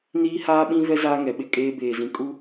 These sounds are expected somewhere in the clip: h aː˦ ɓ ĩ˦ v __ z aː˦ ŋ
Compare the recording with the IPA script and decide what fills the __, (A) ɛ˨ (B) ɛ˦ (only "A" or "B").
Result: B